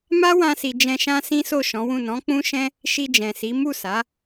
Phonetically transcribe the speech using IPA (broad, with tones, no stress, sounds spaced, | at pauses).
m a˦ w ã˧ s i˨ d͡ʒ ɛ̃˧ ʃ ã˦ s ĩ˦ s o˦˨ ʃ ɔ̃˨˦ w ũ˦˨ n ɔ̃˨˦ k͡p ũ˦ ʃ ɛ̃˦ | ʃ i˧ d͡ʒ ɛ̃˨ s i˨˦ m u˦˨ s a˨˦